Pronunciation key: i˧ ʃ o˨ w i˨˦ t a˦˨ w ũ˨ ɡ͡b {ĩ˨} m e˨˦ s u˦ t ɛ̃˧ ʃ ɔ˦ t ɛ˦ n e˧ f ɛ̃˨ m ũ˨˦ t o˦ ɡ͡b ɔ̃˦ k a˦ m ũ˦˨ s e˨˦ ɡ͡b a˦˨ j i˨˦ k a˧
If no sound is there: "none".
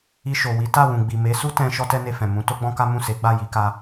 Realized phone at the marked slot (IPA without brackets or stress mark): i˨